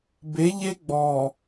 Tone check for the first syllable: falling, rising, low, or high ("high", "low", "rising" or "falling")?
rising